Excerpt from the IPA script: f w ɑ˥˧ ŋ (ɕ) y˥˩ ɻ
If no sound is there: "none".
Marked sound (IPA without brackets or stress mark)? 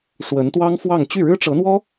t͡ɕ